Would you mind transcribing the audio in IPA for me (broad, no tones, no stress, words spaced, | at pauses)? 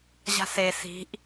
ʑa̤se si̤ʔ